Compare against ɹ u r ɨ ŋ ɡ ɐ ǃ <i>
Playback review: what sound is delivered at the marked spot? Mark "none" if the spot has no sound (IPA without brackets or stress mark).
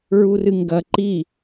i